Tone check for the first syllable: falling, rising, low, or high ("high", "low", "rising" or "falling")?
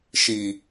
low